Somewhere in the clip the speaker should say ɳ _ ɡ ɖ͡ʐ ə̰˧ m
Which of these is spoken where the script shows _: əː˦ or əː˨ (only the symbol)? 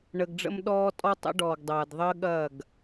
əː˨